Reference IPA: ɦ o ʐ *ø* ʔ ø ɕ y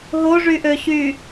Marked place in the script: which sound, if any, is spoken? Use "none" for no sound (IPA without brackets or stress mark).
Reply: y